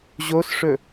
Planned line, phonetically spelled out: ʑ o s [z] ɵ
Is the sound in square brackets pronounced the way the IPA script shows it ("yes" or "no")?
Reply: no